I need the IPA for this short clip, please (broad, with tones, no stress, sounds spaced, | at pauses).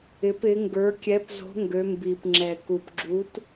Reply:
ɪ˨˦ p ɪ˨˦ ŋ ɡ ə˞˨˦ kʲ ɛ˨˦ p z o̤˨˦ ŋ ɡ ø˨˦ m b i˨˩ p ŋ͡ǁ ɛ˨˩ k u˨˩ p ɡ͡ǁ u˨˦ t